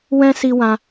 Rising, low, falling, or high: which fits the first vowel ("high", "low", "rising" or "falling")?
high